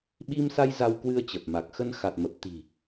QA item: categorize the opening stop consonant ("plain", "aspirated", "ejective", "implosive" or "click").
implosive